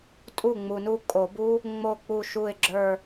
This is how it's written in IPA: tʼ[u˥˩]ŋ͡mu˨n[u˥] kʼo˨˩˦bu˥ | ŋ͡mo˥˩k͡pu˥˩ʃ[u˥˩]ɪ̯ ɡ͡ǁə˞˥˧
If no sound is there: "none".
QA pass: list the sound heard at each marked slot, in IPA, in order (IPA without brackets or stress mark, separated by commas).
u˥˩, u˥˧, u˥˩